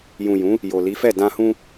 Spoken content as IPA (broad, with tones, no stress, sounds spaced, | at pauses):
j ũ˨ j ũ˨˦ | j o˨ l i˨˦ f ɛ˦˨ d ã˧ h ũ˧